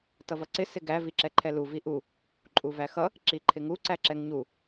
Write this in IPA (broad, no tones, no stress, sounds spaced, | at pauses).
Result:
t ʌ v ʌ ǀ ɪ s ɪ ɡ æ v i ǁ ɛ ǃʰ ɛ l u v i ʔ u | ǃʼ u v æ x ʌ | ǁ i ǃʰ ɪ ŋ u ǀ æ ǁ ɛ ŋ ɲ u